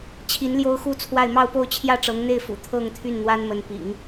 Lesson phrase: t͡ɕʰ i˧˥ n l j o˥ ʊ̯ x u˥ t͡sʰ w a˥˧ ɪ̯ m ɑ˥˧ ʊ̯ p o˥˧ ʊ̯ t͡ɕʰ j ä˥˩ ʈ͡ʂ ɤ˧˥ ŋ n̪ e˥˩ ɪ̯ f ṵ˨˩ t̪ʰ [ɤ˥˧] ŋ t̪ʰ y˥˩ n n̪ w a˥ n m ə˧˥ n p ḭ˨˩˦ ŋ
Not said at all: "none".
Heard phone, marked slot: ɤ˥˧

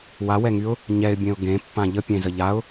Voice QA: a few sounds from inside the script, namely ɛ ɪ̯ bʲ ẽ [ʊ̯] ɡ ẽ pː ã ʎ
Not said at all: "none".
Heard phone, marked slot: ʊ̯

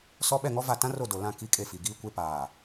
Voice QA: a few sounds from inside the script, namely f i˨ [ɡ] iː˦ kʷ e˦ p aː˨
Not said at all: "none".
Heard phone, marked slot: ɡ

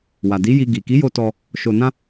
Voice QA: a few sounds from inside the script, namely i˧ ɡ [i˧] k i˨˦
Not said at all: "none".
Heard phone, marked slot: i˨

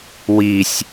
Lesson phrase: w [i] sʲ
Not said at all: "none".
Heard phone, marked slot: i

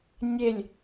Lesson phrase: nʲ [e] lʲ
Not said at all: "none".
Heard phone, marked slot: e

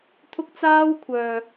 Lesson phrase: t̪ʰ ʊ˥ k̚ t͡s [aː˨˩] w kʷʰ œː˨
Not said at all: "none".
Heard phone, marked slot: aː˥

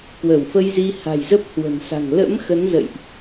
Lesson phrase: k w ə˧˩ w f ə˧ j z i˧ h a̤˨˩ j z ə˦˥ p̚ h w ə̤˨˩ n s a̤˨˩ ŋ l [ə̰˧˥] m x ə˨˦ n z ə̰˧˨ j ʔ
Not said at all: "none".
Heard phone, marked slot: ə̰˧˥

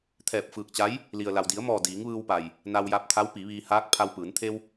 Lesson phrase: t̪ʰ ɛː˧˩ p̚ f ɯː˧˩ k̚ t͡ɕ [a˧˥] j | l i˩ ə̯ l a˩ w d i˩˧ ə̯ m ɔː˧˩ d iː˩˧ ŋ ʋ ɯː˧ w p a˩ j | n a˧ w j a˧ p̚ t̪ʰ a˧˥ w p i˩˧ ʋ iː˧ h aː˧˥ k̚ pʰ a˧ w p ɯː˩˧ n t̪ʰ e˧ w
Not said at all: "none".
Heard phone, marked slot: a˧˥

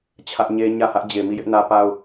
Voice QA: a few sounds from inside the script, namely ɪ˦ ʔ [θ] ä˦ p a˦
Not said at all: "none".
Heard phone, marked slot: n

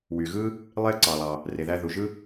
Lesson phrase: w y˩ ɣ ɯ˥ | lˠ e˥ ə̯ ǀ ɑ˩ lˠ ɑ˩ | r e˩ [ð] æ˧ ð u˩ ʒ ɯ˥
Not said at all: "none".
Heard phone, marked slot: ð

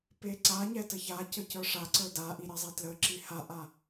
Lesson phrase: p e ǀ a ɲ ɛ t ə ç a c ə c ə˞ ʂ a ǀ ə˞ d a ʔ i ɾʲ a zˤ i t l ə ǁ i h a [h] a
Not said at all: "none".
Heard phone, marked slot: ʔ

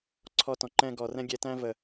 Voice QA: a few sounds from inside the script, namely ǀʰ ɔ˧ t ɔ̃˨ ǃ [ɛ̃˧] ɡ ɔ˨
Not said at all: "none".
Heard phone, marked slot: ɛ̃˧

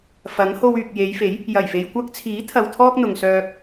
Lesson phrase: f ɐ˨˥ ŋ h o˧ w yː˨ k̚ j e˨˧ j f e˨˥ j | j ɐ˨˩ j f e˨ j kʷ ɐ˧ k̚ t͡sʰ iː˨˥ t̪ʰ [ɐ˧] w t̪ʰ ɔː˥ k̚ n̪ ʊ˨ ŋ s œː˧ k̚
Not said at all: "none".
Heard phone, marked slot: ɐ˧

